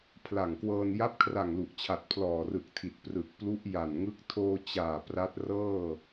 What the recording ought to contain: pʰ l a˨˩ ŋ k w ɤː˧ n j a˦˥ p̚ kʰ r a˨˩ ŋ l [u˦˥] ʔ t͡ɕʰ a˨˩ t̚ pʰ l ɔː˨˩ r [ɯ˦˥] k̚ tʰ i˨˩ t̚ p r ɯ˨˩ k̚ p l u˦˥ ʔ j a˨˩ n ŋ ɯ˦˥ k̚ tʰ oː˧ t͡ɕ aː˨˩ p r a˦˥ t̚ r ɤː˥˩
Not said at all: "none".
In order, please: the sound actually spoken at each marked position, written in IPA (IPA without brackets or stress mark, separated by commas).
u˨˩, ɯ˨˩